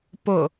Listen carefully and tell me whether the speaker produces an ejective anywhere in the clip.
no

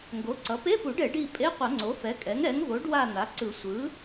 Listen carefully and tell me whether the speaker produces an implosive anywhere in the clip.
no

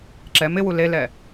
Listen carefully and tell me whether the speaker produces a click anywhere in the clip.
yes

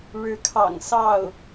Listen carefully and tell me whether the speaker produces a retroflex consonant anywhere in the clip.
yes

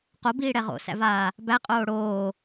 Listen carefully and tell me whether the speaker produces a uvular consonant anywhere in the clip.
yes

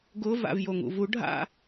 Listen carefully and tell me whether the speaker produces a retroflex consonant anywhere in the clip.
yes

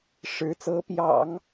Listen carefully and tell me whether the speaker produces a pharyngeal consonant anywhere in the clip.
no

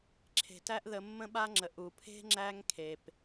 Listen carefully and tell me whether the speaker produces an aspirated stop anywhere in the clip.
yes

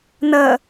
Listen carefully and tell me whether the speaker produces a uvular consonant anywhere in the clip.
no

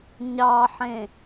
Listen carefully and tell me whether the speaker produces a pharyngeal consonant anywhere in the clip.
yes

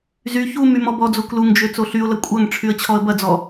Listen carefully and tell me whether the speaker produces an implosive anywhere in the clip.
no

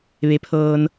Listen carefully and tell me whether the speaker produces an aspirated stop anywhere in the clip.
yes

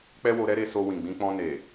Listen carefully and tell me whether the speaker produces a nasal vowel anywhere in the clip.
yes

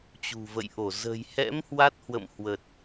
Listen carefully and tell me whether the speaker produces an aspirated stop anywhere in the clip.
no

